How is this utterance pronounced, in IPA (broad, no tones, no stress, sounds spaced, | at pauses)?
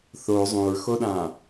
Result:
θ o zˤ ũ ɹ x o ɗ ãː